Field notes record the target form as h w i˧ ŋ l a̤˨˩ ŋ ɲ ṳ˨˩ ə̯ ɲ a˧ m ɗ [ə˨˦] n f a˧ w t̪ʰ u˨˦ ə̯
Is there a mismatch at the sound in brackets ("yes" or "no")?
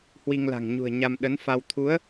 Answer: no